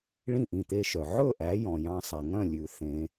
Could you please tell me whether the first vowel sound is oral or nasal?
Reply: nasal